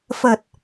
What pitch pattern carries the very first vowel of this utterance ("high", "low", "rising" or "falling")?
low